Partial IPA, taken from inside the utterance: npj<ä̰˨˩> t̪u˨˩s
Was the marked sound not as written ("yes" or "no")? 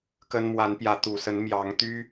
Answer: yes